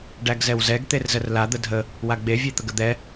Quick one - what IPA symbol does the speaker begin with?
ɖ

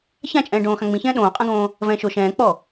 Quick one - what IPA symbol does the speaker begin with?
ç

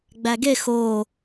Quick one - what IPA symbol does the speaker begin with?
ɡ͡b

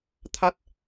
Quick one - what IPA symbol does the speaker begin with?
t̪ʰ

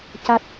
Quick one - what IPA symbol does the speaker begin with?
c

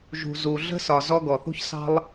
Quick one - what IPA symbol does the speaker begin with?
ʒ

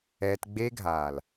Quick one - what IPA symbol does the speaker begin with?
ɛː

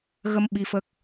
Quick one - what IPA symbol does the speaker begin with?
ɣ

